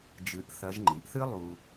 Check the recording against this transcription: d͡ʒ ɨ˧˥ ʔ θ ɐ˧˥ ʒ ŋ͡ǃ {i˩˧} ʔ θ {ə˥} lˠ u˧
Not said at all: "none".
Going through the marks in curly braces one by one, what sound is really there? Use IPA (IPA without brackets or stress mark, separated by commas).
i˩˧, ɨ˥